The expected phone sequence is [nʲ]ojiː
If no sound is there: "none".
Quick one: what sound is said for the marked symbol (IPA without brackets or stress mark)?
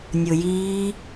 nʲ